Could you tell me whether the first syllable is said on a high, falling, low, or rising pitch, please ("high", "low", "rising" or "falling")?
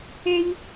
high